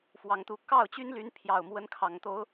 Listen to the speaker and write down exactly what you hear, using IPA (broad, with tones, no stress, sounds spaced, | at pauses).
f w ɑ˨˦ ŋ t̪ u˨˦ k ɑ˥˨ ʊ̯ t͡ɕ y˦ n l y˨˦ n pʰ j ɑ˨˩ ʊ̯ m w ə˨˦ n kʰ ɑ˨˩ ŋ t̪ o˨˦ ʊ̯